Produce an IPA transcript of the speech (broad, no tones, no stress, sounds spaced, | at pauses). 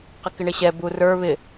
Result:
q ɪ k ɪ ɳ ɪ ɕ ɛ b u r ə˞ β ɪ